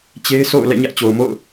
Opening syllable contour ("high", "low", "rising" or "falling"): high